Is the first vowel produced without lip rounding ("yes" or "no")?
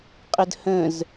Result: yes